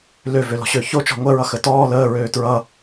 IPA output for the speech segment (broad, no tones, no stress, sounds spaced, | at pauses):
l ø v ø l ɔ̤ ɕ ø ç o t͡ʃ ɔ̤ ŋʷ ɜ ɹ ʌ x ə t ɔː l əː ɹ øː t ɹ ʌ